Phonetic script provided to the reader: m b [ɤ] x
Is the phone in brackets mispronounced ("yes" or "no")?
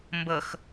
no